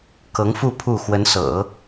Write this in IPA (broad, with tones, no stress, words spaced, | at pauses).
kɤ˧˥ŋfu˥˧ pʰu˥˩ xwə˧˥nsɤ̰˨˩˦